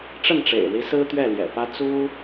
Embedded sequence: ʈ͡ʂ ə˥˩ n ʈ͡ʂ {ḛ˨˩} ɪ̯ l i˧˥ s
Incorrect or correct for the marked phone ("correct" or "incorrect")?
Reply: correct